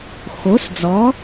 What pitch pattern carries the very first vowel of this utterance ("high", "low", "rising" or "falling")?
rising